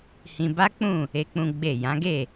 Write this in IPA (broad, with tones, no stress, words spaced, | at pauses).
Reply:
hĩ˧ba˦k͡pũ˦˨ | e˦k͡pũ˦ɡ͡be˦˨ jã˨˦ɡe˦˨